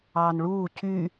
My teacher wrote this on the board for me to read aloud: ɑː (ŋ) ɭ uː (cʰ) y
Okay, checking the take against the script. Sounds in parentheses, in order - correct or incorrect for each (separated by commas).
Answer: incorrect, correct